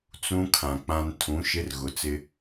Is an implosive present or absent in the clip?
absent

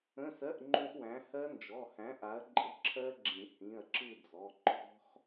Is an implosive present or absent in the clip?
absent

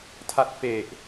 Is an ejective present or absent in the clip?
absent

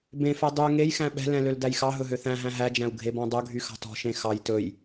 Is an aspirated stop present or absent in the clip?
absent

